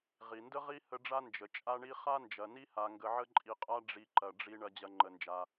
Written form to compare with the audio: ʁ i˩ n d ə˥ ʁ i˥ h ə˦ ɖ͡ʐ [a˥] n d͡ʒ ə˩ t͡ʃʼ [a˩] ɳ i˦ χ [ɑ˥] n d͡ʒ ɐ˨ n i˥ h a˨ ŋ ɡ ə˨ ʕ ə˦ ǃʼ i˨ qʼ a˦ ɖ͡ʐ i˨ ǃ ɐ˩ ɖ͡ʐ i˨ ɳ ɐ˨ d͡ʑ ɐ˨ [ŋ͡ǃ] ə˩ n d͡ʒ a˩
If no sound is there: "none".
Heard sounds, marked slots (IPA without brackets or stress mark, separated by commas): a˥, a˦, a˥, ŋ͡ǃ